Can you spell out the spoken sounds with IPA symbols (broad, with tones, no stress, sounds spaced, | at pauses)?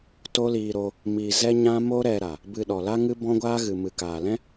t o˦ l iː˧ ɾ o˧ | m i˧ z ɛ˦ ɲ ã˦ m o˦ ɾ ɛ˧ ɾ a˨ | b ɨ˧ ɗ ɔ˨ l a˦ ŋ ɨ˦ b ɔ̃˦ ɡʷ aː˦ ɣ ɨ˨ m ɨ˨ k aː˨ l ɛ̃˦